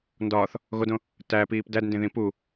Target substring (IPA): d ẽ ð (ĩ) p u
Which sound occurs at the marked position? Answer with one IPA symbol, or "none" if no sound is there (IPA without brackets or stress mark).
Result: ĩ